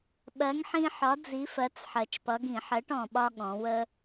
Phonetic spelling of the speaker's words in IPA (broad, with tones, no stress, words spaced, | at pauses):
ɓɜ˨˥ŋħĩ˦ħɒ˨˥ d͡zi˨˥fɜ˨˥t͡s ħɜ˨˩t͡ʃpʌ˨˥ɡĩ˧˩˧ ħɜ˨˥ʈɔ̃˨˩ɓɒ˦ ɠɔ̃˩˧wə˦